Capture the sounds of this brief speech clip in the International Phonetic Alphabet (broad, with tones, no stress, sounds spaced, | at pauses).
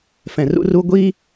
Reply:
f ɛ̃˨ r ṵ˦ r u˦ ɡʷ i˦